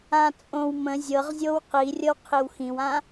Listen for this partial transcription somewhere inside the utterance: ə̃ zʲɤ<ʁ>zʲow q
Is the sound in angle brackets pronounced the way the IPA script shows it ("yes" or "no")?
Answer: yes